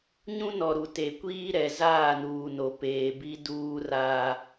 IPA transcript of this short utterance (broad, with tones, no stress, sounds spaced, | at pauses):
ɲ ũ˦ n ɔ˨ ɾ u˨ t e˨ kʷ iː˦ ɾ ɛ˨ z aː˦˨ n uː˨ n o˨ p eː˨ b i˦ d uː˦ r aː˦